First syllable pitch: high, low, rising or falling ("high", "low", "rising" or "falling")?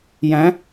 rising